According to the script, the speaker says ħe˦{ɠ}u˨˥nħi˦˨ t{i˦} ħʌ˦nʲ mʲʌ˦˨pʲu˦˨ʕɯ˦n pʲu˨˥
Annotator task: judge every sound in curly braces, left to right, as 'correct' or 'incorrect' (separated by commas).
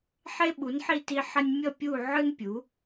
incorrect, correct